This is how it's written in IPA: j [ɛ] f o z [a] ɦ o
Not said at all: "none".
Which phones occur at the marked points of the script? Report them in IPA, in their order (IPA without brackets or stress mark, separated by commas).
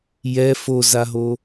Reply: ɛ, a